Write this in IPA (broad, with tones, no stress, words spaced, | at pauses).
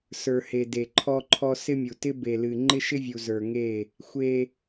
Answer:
sə˞˨he˨ de˨ǃʰɔ˦ǃʰɔ˦ sɪ˦mʲu˨tɪ˦ be˨lɨ˨ ŋ͡ǃɪ˦ʃɪ˦vʲu˨ zə˞˨ŋe˦˨ | xʷe˦